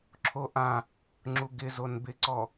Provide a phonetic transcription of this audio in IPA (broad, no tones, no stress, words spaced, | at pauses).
ǁʰoʔã | ŋ͡ǁuɡɪzon bɪǀɔ